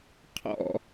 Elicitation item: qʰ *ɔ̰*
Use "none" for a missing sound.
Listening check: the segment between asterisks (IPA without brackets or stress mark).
ɔ̰